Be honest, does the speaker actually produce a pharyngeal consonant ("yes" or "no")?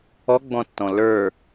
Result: no